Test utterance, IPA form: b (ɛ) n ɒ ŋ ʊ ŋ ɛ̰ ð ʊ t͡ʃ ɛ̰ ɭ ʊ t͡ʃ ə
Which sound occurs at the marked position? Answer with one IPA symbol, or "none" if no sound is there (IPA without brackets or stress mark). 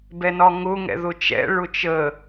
ɛ